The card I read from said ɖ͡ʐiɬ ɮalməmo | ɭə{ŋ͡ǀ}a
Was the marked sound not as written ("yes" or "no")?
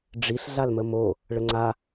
no